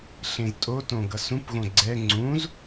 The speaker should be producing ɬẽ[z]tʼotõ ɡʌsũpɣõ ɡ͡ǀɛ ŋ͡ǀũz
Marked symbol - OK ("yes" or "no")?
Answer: yes